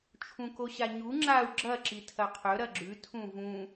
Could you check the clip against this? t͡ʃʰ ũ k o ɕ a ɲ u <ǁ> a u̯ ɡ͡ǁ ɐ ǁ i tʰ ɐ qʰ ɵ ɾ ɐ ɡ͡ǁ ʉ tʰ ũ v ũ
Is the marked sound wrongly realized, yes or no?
yes